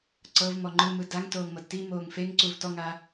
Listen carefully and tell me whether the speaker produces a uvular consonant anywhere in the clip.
no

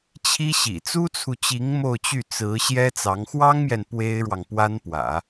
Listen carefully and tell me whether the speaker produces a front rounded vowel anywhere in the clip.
yes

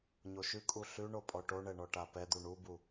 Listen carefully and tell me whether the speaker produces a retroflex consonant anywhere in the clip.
yes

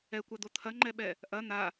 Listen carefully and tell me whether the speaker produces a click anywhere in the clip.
yes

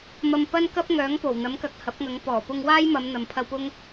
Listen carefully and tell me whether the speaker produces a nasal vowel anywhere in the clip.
no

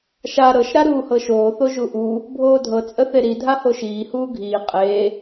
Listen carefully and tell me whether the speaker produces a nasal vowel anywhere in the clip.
no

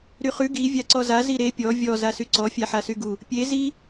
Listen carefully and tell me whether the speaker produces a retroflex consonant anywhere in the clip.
no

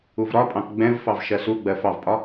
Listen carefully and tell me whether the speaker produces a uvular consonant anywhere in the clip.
no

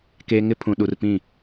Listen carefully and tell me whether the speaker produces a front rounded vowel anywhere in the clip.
no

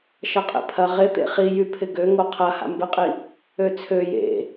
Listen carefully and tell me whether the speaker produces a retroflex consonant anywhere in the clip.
no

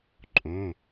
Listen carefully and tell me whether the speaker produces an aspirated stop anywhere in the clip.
no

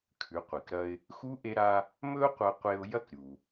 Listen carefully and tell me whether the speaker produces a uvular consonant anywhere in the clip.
yes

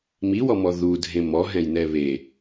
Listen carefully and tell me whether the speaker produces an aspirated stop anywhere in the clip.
no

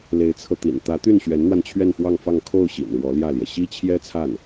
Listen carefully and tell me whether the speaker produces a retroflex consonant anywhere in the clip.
yes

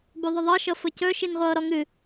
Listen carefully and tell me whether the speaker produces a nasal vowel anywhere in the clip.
no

